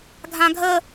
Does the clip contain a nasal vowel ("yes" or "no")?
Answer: yes